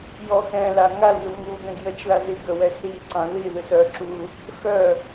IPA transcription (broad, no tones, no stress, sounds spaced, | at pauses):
j ɔ x ɛ̃ l a ŋ a l z u ŋ u ɡ ɛ̃ ɡ j ə t͡ʃ ð a z i ɡ ə w ɛ s i ǀ ɑ̃ ð i ð ɨ s œ ǁ u | x œ